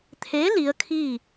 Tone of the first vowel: rising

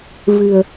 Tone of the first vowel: low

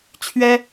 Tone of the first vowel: high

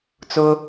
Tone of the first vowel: high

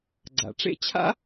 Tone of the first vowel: low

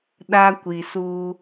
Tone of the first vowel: high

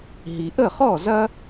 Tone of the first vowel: low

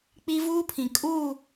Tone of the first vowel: high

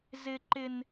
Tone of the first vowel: high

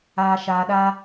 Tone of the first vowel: low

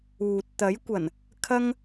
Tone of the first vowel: low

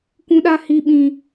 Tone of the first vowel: high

